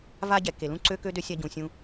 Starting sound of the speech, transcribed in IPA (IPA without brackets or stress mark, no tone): v